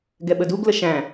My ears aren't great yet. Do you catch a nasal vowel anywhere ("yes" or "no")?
yes